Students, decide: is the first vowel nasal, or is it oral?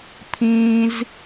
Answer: nasal